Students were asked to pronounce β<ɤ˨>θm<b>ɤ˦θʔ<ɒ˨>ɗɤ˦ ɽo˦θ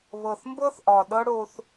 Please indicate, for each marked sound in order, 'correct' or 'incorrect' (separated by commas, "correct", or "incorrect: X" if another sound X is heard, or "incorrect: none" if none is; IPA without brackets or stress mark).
correct, correct, correct